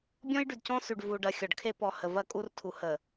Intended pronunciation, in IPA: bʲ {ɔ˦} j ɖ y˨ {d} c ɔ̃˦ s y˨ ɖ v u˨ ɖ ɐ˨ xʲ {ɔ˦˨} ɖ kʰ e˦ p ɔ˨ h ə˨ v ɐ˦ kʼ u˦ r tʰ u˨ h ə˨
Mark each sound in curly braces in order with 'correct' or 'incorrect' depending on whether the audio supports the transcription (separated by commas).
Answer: incorrect, correct, incorrect